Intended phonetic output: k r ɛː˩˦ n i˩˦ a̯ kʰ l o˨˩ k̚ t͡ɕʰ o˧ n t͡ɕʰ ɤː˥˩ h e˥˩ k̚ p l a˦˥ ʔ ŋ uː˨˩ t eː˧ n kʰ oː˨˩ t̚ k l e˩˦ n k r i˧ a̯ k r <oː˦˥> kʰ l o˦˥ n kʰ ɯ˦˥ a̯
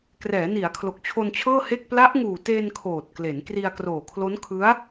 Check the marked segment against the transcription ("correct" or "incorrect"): incorrect